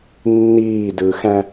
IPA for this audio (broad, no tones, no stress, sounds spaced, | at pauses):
nː iː d ɯ x æ̃